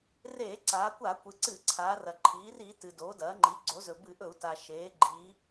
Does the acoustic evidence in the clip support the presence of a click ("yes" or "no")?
yes